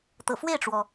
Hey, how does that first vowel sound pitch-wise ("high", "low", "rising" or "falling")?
low